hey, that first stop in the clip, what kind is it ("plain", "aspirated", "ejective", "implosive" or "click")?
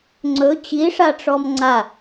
click